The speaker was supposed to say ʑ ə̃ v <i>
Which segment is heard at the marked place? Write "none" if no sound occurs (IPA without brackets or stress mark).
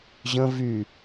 y